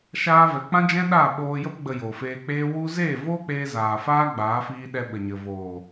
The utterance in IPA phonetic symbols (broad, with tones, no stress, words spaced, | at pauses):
ʃaː˧vɛ˨k͡pã˦d͡ʒɛ̃˦ ɗa˦˨ɓoː˧ jə˧pɡ͡bə˨ jo˨feː˧k͡peː˦ wu˧ zeː˦˨voː˦k͡peː˧zaː˨ faː˦ɡ͡baː˨˦fiː˧ɗɛ˧ ɓə˨ɲə˨voː˨